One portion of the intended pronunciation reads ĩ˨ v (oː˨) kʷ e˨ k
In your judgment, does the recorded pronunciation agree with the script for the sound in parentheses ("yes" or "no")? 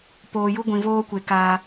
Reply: no